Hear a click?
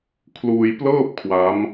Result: no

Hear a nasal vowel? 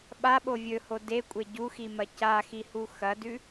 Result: no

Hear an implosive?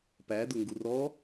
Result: no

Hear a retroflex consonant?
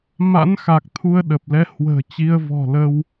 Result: no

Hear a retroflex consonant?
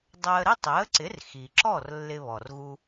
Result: no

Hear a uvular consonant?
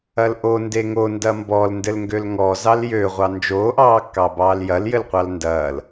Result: yes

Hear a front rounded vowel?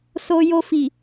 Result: no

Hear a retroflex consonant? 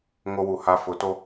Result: no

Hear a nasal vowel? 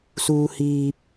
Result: no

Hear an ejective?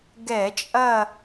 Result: yes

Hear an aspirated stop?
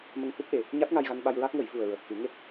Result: no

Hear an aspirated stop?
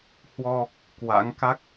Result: no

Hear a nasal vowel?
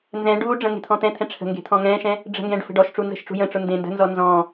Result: yes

